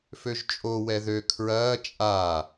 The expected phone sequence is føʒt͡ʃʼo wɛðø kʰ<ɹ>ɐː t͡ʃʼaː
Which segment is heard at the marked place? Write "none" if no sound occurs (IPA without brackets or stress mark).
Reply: ɹ